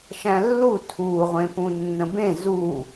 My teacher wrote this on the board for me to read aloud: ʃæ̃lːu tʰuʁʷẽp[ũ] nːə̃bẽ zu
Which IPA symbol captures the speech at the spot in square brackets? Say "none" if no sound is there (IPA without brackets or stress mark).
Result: ũ